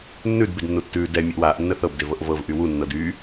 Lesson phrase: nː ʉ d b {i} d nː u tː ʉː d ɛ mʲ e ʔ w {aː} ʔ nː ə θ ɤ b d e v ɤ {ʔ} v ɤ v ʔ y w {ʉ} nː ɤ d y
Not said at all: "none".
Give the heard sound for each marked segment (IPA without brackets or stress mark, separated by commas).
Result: e, aː, ʔ, u